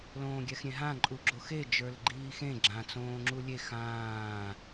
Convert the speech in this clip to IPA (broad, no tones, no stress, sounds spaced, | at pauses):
l õː ɡʲ ɛ x ɾʲ ẽ ɦ ã ǃʼ u ɡ͡ǁ o x e d͡ʒ ə˞ l ɡ͡ǃ iː x ẽ ɡ͡ǁ ã t͡s õː ŋ͡ǁ u lʲ e x ãː